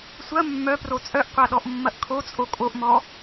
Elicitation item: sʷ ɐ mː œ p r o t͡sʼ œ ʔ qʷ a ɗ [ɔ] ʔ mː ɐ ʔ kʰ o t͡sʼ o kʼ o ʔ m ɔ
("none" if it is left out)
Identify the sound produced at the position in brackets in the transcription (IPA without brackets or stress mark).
ɔ